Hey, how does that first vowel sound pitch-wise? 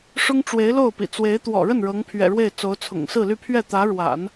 high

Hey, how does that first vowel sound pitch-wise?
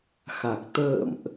low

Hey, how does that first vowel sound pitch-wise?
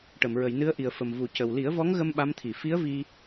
low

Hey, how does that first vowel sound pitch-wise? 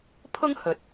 high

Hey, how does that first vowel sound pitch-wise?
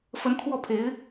rising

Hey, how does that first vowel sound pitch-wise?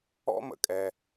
high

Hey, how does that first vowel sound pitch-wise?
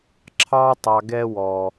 high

